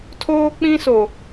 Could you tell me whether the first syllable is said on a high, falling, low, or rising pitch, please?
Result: high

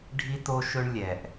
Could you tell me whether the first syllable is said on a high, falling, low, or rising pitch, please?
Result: high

